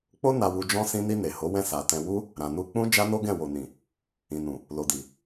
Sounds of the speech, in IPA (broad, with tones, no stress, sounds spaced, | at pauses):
k͡p o˦ n a˧ w u˧ d͡ʒ ɔ̃˧ s ĩ˧ n i˧ n e˨ h o˨˦ w ɛ̃˦˨ s a˧ t ɛ̃˧ w u˦ | ɾ ã˨ n u˧ k͡p ũ˦ d͡ʒ a˦ n o˦ ɡ ɛ̃˦˨ w o˨ n ĩ˨ | ĩ˨ n ũ˨ | l o˨ d i˨